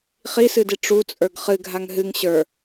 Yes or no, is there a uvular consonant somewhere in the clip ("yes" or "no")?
yes